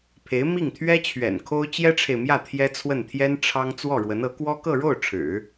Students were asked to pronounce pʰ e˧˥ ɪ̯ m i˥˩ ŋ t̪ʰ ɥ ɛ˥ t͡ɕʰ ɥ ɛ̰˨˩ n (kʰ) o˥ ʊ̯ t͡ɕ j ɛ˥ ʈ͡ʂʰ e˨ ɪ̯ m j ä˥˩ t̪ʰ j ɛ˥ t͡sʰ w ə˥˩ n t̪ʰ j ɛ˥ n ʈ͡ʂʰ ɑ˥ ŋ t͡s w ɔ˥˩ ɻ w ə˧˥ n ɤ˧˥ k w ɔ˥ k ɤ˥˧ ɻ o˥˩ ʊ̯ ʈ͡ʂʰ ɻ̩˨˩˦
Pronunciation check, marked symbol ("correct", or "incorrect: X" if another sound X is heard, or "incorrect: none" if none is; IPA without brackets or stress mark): correct